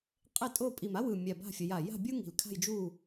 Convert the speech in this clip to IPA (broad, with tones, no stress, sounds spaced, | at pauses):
qʼ e˥˨ tʼ o˥˨ pʼ i˧˩ m a˥ w ɯ˧˩ mʲ a˧˩ b a̤˥˨ fʲ ʌ˨˦ j a˧˩ j a̤˥˨ bʲ u˥ ŋ i̤˧˩ l kʰ a̤˥˨ j d͡ʒ u˥˨